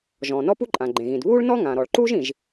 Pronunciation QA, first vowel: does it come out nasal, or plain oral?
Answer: nasal